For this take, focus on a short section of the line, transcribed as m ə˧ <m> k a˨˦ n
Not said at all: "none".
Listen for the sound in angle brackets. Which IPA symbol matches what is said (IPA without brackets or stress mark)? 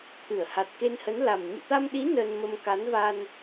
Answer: m